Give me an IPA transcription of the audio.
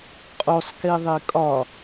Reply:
qʼ o sˤ k e ðˤ e kʼ ɒ

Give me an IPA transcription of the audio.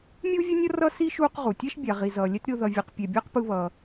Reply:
mʲ uː˥ vʲ ʌ˥ nʲ ʌ˥ r ʌ˥ s i˥ ʃ uː˦ q ʁ u˩ tʲ ɛ˥ ʃ bʲ a˩ ʁ i˩ z ʌː˩ lʲ ɛ˥ t ɾʲ o˦ ð ʌ˨ vʲ ɛ˨ q pʲ ɛ˨ bʲ ʌː˥ q p ɯ˦ β ʌː˨

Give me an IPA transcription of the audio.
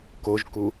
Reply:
k o ʒ k u

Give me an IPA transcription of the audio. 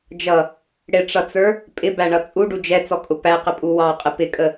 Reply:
d͡ʒ ʌ | ɽ ɪ ʈ͡ʂ ʌ t͡s ə˞ | pʼ ɪ b æ ɳ ʌ t͡sʼ u ɖ u d͡ʒ ɛ t͡s ɔ kʼ ʊ p æ q ɪ pʼ u w ɑ qʼ ɪ p ɪ kʼ ə

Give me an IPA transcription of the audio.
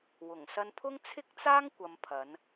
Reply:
w ʊ˨˩ ŋ s ɐ˧ n pʰ ʊ˥ ŋ t͡sʰ ɪ˥ k̚ t͡s aː˥ ŋ kʷ ɐ˨ m pʰ ɐ˨˧ n

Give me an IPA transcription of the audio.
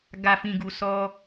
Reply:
ɡ a˨ f ĩ˨ ɡ u˨ s ɔ˧

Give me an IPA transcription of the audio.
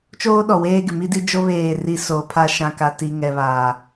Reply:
t͡ʃ oː˦ ɗ ɔ˨ w eː˦ ɡ ɪ˨ m i˦ d i˦ d͡ʒ o˦ β eː˦˨ r i˦ s o˨˦ pʰ a˦ ʃ ã˨ k a˨ t i˨ ŋ ɛ˨ β aː˨

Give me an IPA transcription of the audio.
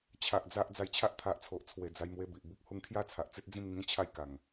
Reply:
t͡ɕʰ a˨ ʔ d͡z a˦ ʔ d͡z a˨˩ j t͡ɕʰ a˦ ʔ t̪ʰ a˨ ʔ t͡sʰ o˨ ʔ t͡sʰ w e˨˩ d͡z a˧ j m w e˧ b i˨ ʔ b u˦ k̚ h u˧ ŋ kʰ j a˥˧ t͡sʰ a˨ ʔ t͡s i˦ t̚ d͡z ĩ˥˧ m ŋ ĩ˦ t͡ɕʰ a˥˧ j k a˨˩ ŋ

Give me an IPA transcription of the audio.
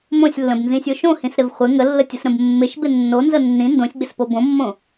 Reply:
m õ sʲ lː ə̃ b n z ĩ sʲ o ʃ õ h ĩ s ɾ ɪ v χʷ ɪ ŋ ə lː ə tʲ ə s ɾ ə̃ b mː ɪ ʃ b ɪ nː o n z ə nː ĩ n d õ sʲ ɡ͡b ɪ s p o b õ mː õ

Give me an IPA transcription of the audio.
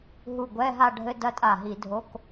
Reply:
ɦ u˧˩ ɡʷ ɛ˧˥˧ ɦ a˥˧ ɖʱ ɘ˧˥˧ d ɐ˦˥ tʼ a˧˩ ɦ i˧˩˧ dʱ o˧˥˧ k

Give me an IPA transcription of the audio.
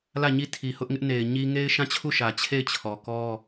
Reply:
l ä˦˨ ɲ i˦˨ tʰ i˨ h ʊ˦ ʔ ŋ ɪ˦ ʔ n e˨ ɪ̯ ɲ i˦ ŋ e˦ ɪ̯ ʃ ã˦˨ t͡ɕʰ u˦˨ ʃ ä˨ t͡ɕʰ e˦˨ ɪ̯ t͡ɕʰ ɔ˨ k ɔ˦

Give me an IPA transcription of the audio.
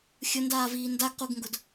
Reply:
xʲ ʊ n d aː v iː n d a ɡ q u ɡ ŋ ɡ ʊ d

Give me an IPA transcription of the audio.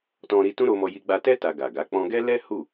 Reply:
t ɔ̃˧ ɾ i˧ t ũ˦ ɾ o˧ m ɔ˧ j i˧ ɡ͡b a˧ t ɛ˦ t a˧ ɡ a˨ ɡ a˨˦ k͡p ɔ̃˦ ɡ ɛ˦ l ɛ˦ h u˦˨

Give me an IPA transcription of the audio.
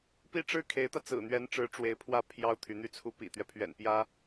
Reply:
p i˥ ʈ͡ʂ ɻ̩˥˩ kʰ e˧˥ ɪ̯ t̪ ä˧ t͡s ɹ̩˨˩ n̪ ɥ ɛ˧˥ n ʈ͡ʂ ɻ̩˧˥ ʈ͡ʂ w e˧˥ ɪ̯ pʰ w ä˥˩ pʰ j ɑ˥ ʊ̯ t̪ʰ y˧˥ n̪ y˥˩ t͡sʰ u˥ p ḭ˨˩ t̪ ɥ ɛ˦ pʰ ɥ ɛ̰˨˩ n p j ä˥

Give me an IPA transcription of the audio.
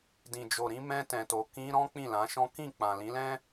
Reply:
d ĩ˨ d͡ʒ o˨ ɾ ĩ˧ m ɛ̃˧ t ɛ̃˨ t o˨ k ĩ˧ ɾ ɔ̃˦ k͡p ĩ˦˨ l ã˨˦ ʃ ɔ̃˦ k ĩ˦˨ k͡p ã˨ l ĩ˨˦ l ɛ̃˦

